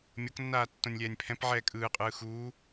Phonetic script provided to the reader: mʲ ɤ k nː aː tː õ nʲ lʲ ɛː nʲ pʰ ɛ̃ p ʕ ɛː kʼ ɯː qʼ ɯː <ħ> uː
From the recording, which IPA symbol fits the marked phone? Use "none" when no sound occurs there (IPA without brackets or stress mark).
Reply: x